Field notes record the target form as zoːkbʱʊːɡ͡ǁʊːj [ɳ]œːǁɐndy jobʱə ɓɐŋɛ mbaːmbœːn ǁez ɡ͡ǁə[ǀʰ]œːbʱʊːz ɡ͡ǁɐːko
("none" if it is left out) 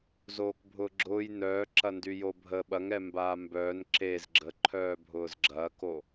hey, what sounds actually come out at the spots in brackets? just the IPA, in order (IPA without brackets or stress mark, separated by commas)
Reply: n, ǃʰ